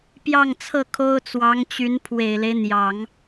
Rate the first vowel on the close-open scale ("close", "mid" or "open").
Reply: open